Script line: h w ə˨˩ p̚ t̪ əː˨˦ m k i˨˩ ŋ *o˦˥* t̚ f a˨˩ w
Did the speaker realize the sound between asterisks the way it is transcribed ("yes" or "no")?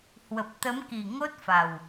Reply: yes